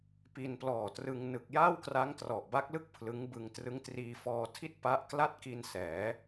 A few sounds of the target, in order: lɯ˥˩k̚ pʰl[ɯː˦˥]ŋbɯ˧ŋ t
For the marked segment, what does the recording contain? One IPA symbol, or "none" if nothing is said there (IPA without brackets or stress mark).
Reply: ɯ˦˥